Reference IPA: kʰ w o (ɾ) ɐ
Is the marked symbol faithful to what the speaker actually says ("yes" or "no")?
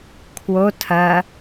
no